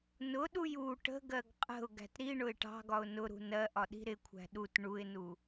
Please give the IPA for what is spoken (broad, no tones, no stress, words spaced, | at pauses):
nʊɗuj u ʈə̤ɡɜɡ qʼə̤ʊ̯ ɡæ̤tɾiɳʊɪ̯ ʈɑ̤ɡɒʊ̯ nʊɾṳ nɜʔɒ ɗi̤ɾɪkʷʰæ̤ ɗut ɳuɪ̯nu